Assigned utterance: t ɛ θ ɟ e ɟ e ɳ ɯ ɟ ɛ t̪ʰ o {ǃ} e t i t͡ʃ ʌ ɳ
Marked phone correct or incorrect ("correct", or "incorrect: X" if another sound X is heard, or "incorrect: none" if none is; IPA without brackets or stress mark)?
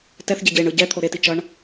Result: incorrect: ɾ